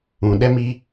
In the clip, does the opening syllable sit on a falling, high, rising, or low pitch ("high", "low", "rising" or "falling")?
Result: low